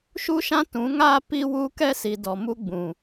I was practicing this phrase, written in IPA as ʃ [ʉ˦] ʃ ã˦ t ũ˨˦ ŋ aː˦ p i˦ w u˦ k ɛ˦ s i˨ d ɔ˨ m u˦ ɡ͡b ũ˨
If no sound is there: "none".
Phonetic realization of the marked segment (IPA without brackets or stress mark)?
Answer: u˦